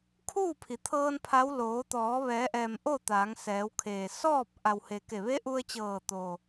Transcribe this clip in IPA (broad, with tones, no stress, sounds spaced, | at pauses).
kʰ uː˥˨ pʰ i˩˧ t̪ʰ ɤː˧ n pʰ a˧˥ w l oː˩˧ t̪ ɔː˩˧ ʋ ɛː˩˧ ʔ ɛː˩ m ʔ o˥˨ t̪ aː˩˧ ŋ s ɛː˩˧ w kʰ eː˩ s ɔː˥˨ p̚ ʔ a˩ w h e˩ k e˧˩ ʋ e˧˥ ʔ u˧ ə̯ t͡ɕ ɤː˧˩ t̪ oː˩